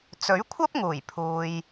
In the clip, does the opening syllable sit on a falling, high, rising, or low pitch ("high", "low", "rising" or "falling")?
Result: rising